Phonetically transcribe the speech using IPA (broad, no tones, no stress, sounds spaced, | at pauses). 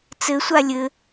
t͡s ɘ sʷ a lʲ ɘ